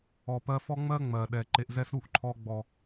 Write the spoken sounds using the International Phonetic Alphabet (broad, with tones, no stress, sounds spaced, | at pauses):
ɔ˨ p ɜ˧ f ɔ˦ ŋ͡m ɜ˦ ŋ͡m ɜ˨ ɗ ɛ˨ ǃ e˨ ʔ z ɛ˧ s ɾ u˦˨ ʔ ǃʰ ɔ˧ ɡ͡b ɔ˨